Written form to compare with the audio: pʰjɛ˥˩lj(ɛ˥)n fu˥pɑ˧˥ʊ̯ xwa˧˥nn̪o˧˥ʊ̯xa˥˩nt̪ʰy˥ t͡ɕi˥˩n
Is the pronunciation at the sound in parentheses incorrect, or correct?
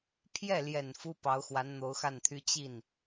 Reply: incorrect